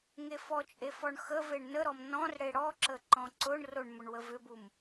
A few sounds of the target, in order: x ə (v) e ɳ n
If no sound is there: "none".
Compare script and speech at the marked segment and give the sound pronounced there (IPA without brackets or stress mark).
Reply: v